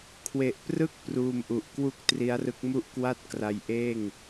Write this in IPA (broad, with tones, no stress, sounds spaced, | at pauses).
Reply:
kʰ w e˨˩ ʔ p r ɯ˦˥ k̚ p r uː˧ m ʔ u˨˩ ʔ k w u˥˩ k̚ t r i˦˥ a̯ r ɯ˦˥ k̚ m u˥˩ ʔ k w a˥˩ t̚ k r a˧ j ʔ eː˥˩ ŋ